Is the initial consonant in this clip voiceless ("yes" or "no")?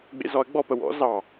no